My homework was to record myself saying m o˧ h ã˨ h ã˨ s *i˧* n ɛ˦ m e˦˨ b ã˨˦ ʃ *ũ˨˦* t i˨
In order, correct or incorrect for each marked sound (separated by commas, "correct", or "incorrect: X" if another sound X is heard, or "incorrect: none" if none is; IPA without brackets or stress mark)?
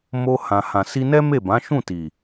correct, incorrect: ũ˦˨